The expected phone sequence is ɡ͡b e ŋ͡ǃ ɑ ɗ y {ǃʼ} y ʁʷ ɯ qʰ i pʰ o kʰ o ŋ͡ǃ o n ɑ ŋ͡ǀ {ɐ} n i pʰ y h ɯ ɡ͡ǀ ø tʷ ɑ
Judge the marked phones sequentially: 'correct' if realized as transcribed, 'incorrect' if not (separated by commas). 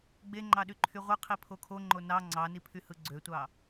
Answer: incorrect, incorrect